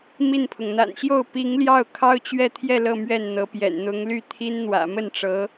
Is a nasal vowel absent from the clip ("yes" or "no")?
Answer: yes